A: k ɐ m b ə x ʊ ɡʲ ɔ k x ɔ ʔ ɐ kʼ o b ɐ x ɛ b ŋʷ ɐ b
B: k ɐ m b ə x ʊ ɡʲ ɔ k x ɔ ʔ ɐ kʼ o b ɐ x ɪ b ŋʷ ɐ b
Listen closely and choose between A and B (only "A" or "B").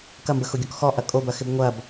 B